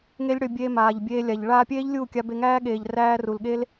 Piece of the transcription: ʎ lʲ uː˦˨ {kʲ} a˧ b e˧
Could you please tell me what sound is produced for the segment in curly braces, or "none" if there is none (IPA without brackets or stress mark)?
kʲ